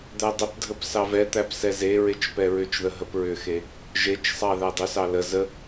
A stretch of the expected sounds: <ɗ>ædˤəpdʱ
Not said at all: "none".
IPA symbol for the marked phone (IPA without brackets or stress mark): d̪